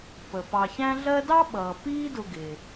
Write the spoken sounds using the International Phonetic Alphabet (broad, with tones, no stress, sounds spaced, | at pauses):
p ə˩ p ɑ˨ ç æ̃˥ ɮ ɜ˦ d ɑ˥ ɓ ʌː˩ p iː˦ d ʊ˨ ɡ ɪː˩